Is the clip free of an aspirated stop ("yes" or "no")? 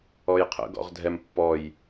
no